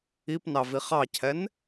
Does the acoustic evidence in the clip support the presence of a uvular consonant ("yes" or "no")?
yes